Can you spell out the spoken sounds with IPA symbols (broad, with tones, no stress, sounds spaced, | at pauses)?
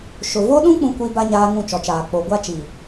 ʃ ʊ˨ v o˦ ɗ ũ˦ k͡p ũ˦ kʷ i˦ b a˦ ɲ aː˦ ŋ ũ˦˨ t͡ʃ ɔ˨ t͡ʃ aː˨ k͡p o˨ ɡʷ a˦ t͡ʃ i˨